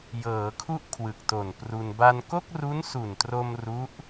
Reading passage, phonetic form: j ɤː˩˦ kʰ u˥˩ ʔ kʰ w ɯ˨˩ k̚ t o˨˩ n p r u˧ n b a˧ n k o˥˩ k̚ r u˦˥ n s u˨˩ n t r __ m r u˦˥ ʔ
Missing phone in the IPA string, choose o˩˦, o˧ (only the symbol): o˧